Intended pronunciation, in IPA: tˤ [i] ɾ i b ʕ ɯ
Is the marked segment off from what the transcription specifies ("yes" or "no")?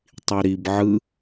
no